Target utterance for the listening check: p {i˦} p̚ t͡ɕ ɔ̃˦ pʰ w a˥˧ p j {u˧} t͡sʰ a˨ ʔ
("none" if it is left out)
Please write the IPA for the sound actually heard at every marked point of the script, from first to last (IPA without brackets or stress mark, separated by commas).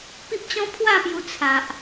i˦, u˧